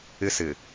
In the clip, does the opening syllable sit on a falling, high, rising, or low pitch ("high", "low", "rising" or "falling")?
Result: high